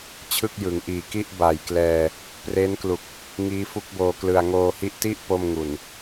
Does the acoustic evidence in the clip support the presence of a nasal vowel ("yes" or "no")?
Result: no